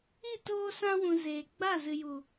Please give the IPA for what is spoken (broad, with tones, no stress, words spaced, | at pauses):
i˦˨toː˧sã˧wũ˨ zeː˨ɡ͡ba˦˨ zɨ˨ju˨